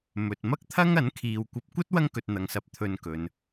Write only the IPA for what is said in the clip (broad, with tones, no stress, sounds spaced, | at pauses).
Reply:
m ɵ˨ t̚ m ɐ˥ k̚ t̪ʰ ɐ˥ ŋ ɐ˨˥ n kʰ iː˨ w kʷ ɐ˧ p̚ kʷ ɐ˥ t̚ w ɐ˥ ŋ k ɵ˨ t̚ n̪ ɐ˨ ŋ s ɐ˨˥ p̚ t̪ʰ ɵ˧ n k ɵ˨˧ n